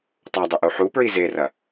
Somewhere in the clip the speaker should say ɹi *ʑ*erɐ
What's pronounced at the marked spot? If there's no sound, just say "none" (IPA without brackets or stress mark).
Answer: z